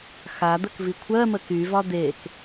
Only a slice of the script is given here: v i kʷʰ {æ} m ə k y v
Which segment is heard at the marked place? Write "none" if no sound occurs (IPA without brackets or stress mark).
ɜ